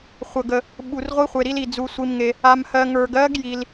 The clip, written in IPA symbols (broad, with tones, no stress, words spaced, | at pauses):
χʷə˨ɡə˨ | ɓu˨r ʁʷi˦˥χʷe˨ɾi˦˥li˨ d͡zu˨sʷi˨mŋe˨ | a˨mhɜ˨ ŋə˞˨ɡɜ˦˥ɡji˨l